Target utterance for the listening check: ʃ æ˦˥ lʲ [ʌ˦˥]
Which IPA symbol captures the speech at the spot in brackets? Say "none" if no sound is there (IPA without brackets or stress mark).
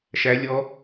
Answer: ɔ˦˥